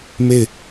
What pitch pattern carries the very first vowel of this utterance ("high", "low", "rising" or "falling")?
falling